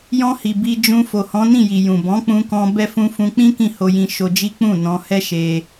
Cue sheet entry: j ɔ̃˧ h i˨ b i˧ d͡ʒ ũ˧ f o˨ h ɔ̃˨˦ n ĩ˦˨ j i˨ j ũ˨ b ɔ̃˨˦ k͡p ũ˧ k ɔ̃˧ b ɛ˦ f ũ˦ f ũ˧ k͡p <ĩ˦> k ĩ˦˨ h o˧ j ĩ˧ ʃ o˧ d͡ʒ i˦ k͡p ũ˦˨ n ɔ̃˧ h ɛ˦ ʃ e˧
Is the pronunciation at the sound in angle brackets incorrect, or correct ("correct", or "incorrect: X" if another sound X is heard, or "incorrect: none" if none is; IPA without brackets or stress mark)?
correct